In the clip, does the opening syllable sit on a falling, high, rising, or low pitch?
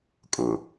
low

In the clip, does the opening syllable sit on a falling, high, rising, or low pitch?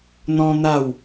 high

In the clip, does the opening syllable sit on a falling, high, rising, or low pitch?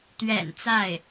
low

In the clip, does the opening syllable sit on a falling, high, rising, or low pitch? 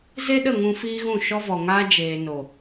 high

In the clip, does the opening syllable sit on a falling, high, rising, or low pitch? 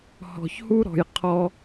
low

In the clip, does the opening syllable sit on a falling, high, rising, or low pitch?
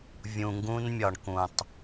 low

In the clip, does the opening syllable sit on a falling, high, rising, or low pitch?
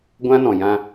high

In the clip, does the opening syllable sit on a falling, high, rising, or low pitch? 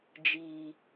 low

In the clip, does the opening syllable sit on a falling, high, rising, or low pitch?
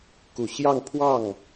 low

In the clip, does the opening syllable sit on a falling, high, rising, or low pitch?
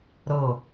falling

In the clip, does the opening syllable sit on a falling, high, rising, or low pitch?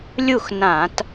falling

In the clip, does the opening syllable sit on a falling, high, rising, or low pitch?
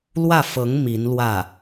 falling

